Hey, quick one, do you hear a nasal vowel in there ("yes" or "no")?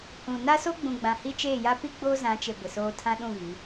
yes